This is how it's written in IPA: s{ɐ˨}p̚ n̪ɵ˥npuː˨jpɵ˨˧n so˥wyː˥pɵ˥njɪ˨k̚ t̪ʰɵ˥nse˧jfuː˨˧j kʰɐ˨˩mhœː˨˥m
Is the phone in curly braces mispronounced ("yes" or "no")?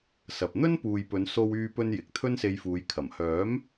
no